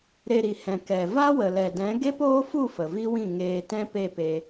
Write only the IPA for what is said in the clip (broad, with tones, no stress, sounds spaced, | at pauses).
ɾ e˧ ɾ i˨ h ɛ̃˨ k ɛ˨ v a˦ w ə˨ l ɛ˨ d ɛ̃˨˦ ɡ e˦ p oː˦ f u˦˨ f ə˨ v i˦ w ĩ˦˨ ŋ eː˧ t ɛ̃˦ p e˦˨ p e˧